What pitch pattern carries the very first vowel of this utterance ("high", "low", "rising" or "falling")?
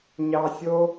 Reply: low